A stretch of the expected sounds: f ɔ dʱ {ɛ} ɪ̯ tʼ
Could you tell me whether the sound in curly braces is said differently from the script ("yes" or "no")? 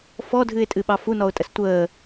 yes